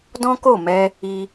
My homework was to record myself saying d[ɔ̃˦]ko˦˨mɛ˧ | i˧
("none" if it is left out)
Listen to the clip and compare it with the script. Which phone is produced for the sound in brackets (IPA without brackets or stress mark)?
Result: ɔ̃˦